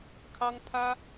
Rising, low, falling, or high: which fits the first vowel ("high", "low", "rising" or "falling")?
high